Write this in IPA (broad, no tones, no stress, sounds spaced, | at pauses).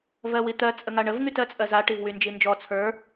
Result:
v ɜ w i t̪ ɜ t͡sʼ ə ŋ a ɳ ə v ŋ y t ɜ t͡sʼ ɜ z a ʈ i v w y n d͡ʒ i n d͡ʒ ɔ t͡sʰ ə˞